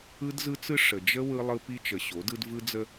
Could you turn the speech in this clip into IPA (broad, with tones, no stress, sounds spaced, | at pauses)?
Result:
ɯ˦ d z ɯ˦ t͡s ɯ˦ ʂ ə˨ d͡ʒ ə˦ w ɯ˦ lˠ ɯ˦ p i˦ t͡ʃ ə˨ ɕ o˨˦ d ɯ˦ d v ɯ˦ d͡z ə˦